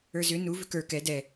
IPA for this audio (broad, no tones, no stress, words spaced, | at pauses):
ə˞zʏ nu vʏkə˞ kɛ dɛ